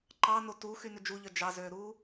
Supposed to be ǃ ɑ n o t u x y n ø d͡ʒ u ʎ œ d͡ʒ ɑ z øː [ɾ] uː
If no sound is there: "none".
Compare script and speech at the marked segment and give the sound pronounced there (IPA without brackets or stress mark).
ɾ